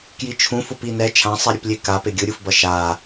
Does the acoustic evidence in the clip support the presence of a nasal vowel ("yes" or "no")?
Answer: yes